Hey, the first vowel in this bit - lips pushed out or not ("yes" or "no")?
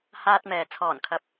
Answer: no